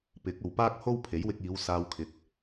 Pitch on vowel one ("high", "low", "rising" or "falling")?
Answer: rising